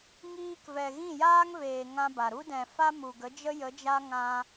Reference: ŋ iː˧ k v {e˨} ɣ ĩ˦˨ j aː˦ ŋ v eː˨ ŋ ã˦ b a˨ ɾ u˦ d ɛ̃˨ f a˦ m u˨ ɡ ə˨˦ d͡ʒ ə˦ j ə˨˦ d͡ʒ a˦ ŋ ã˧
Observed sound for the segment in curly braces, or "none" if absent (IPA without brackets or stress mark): ɛ˨